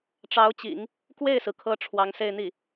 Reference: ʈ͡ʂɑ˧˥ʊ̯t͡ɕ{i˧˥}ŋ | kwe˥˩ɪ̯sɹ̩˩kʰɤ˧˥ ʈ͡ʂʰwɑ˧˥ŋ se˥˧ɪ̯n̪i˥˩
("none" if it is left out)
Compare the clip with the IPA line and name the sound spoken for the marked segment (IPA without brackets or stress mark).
ḭ˨˩˦